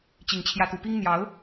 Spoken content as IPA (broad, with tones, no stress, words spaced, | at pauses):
t͡ɕi˨˩ŋt͡ɕʰjä˨˦t̪u˨˩pi˦ŋ n̪jɑ˨˦ʊ̯